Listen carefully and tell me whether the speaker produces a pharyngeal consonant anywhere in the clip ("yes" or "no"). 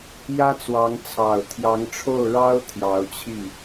no